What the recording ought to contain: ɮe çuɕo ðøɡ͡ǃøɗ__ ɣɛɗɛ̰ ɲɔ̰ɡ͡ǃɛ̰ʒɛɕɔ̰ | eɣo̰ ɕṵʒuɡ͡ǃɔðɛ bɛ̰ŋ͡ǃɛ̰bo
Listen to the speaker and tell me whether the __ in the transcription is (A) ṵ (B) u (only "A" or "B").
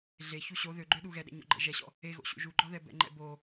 B